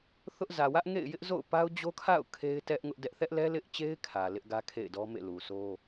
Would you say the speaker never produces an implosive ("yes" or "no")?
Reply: yes